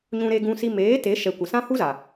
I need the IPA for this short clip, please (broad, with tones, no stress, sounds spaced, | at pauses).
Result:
ɲ ũ˧ ɾ e˧ ɡ ũ˧ s i˧ m eː˨˦ t e˨˦ ʃ ɛ˨ kʷ ə˨ s ã˦ h u˦ z a˨